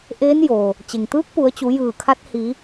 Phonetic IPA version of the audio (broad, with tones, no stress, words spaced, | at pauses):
ʔeː˧˥n jo˩ | t͡ɕe˩ŋt̪ɯː˧˥k̚pu˩˧ə̯t͡ɕu˩˧ jɯː˧˩kʰa˧˥t̚ hi˩˧